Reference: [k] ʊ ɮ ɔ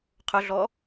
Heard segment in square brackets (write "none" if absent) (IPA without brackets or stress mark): qʰ